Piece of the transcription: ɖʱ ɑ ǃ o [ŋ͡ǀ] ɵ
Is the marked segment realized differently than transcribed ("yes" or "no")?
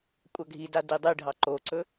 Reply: yes